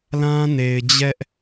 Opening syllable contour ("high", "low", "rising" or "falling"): high